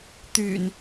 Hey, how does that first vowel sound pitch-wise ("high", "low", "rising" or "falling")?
low